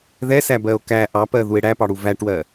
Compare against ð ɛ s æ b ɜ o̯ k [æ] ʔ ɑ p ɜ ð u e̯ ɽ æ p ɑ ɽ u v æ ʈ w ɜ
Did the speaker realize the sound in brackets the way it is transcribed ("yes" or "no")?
yes